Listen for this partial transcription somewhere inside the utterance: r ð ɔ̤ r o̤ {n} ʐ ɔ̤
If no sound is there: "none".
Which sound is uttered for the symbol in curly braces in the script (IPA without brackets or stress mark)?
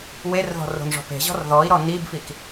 n